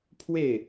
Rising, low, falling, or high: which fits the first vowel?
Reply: falling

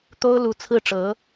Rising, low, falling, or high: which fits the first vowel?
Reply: high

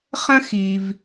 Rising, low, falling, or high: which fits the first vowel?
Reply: high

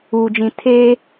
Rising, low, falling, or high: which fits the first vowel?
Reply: low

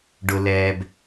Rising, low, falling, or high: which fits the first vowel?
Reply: low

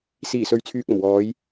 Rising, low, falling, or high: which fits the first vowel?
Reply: low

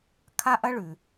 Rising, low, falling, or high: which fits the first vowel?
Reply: high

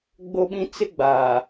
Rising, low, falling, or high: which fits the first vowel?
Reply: high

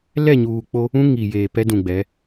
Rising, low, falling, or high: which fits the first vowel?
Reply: falling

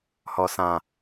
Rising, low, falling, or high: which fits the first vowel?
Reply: low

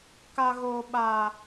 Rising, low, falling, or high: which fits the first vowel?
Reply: high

